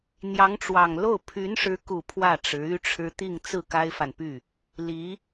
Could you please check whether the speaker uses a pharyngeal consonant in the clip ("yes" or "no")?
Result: no